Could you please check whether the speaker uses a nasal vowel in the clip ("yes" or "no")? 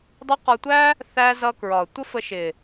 no